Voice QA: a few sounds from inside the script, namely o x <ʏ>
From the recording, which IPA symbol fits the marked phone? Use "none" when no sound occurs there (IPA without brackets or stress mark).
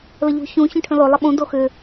ʏ